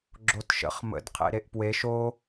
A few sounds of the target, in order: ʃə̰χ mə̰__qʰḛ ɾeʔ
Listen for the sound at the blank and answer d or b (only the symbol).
d